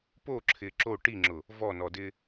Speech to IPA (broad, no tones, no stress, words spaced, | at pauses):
poǁʰɪː ǁo ʈiŋ͡ǁʊ | vɔnɔdɪː